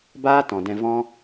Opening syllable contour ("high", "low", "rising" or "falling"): high